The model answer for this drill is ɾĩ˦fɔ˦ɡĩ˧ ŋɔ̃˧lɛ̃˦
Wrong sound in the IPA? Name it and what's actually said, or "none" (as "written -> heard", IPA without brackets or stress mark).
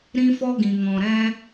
l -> ɾ